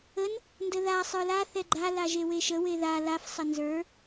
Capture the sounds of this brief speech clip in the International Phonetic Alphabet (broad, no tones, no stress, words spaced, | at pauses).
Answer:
ən | ndəða sˤə˞la θɛɡ͡ǃa laʒeweʃə weða laf sˤənzə˞